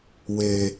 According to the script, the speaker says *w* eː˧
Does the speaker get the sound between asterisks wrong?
no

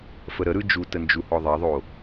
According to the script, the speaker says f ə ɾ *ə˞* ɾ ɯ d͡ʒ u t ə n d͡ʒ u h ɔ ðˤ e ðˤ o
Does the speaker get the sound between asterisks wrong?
yes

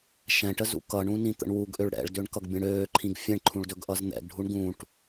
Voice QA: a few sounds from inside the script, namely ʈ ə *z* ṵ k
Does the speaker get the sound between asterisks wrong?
no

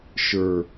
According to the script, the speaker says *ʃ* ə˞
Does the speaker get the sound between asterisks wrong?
no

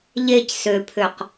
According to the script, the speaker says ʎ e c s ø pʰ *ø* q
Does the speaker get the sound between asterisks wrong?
no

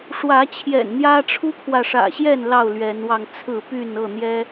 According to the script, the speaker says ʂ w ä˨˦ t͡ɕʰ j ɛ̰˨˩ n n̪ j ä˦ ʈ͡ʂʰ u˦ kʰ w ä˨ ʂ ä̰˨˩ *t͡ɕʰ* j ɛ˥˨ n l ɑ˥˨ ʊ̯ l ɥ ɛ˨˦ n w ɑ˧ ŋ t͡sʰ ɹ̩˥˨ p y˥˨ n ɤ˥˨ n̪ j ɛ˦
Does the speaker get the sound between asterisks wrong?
yes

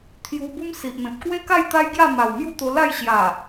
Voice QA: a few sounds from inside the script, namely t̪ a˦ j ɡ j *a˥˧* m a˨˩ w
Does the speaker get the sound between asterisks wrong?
no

